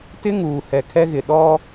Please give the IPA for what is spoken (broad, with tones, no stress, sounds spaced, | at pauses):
t ɪ˦ ŋ uː˨ h ɛ˨ kʰ ɛ˦ ɣ ɪ˨ ɗ ɔ˦